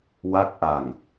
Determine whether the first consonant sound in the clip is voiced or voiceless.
voiced